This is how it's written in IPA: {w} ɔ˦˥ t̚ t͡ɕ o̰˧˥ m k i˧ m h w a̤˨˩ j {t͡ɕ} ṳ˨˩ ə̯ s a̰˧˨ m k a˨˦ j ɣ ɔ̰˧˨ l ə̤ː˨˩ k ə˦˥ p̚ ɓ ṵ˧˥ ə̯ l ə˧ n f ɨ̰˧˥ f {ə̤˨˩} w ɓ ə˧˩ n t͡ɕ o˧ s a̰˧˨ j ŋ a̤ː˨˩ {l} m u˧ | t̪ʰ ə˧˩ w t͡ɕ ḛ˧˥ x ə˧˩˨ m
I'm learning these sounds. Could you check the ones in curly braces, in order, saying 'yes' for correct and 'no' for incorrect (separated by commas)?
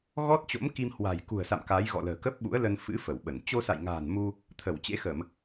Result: no, no, no, no